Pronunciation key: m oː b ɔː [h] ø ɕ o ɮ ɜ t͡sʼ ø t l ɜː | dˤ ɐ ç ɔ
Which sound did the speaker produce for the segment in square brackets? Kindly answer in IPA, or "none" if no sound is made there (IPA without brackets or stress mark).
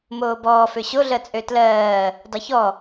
f